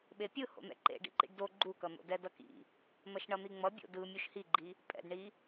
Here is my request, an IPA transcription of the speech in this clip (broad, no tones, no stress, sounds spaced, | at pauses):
ɓ e pʲ ɯ h o̰ n̪ ɛ̰ ǃ ḛ ɖ ḭ ǃ ḭ ɖ d o ɡ͡ǃ u k ʌ n̪ o̰ d ɛ d ʌ k ḭ | n̪ ʌ ʃ ɳ ʌ n̪ i ŋ͡m ʌ bʲ o̰ d ɯ mʲ u ʃ h i ɡ͡ǃ i | pʼ ɛ̰ d ɳ i